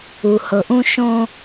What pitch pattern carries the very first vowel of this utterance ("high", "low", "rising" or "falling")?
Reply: low